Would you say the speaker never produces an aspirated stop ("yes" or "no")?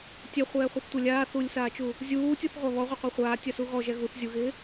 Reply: yes